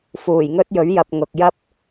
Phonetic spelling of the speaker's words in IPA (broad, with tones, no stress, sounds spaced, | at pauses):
f uː˨˩ j ŋ ɵ˥ t̚ j ɵ˨˥ ɥ j ɐ˨ p̚ ŋ ʊ˨ k̚ j ɐ˥ p̚